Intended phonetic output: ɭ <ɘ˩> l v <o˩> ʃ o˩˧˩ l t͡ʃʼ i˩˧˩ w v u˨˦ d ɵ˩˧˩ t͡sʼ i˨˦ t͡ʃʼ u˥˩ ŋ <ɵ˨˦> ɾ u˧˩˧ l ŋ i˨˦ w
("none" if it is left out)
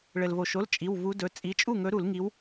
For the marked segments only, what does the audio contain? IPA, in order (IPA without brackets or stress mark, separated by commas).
ɘ˩, o˩, ɵ˨˦